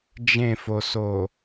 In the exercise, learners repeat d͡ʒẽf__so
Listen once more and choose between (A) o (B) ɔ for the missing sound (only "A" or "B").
A